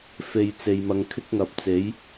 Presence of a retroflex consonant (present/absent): absent